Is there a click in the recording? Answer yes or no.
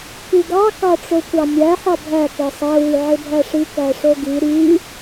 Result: no